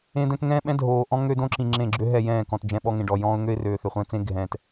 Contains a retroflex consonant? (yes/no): yes